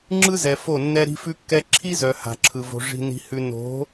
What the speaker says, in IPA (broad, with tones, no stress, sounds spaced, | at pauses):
ŋ͡ǁ ɯ˦ z ɛ˨ f o˦˨ nː ɛ˦ ɾ i̤˦ f ʉ˦ kː ɛ˦ ǁʰ i˦ z œ˨ h a̤˨ ǁʰ ɯ˨ v o̤˨ ʐ i̤˨ n i̤˨ h ʉ˨ n o̤˨˦